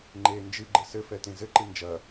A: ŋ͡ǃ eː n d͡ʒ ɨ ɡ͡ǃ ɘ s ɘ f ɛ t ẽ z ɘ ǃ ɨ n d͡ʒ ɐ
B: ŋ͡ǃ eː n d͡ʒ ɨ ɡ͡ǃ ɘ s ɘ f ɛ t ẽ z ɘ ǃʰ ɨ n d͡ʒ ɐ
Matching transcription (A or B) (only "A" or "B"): A